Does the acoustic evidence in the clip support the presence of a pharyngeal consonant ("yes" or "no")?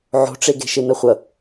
yes